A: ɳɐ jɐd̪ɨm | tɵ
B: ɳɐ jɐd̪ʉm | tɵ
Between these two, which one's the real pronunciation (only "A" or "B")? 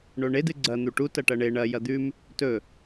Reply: B